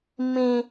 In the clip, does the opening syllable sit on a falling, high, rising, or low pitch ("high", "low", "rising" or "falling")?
high